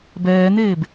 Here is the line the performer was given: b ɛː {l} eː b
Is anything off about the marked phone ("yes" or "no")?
yes